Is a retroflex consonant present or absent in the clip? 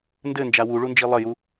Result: present